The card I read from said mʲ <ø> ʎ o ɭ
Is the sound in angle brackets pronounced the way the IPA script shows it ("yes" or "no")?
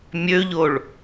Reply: yes